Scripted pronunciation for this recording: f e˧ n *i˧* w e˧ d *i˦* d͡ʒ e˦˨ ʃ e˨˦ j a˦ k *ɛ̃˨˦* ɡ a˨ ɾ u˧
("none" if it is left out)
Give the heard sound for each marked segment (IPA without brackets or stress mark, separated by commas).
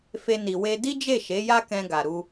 i˨, i˦, ɛ̃˧